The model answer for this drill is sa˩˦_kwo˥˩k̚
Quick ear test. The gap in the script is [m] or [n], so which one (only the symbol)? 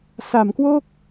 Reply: m